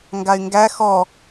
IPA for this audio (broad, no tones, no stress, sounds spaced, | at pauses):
ŋ ɡ a y̯ ŋ ɡ æ x ɔ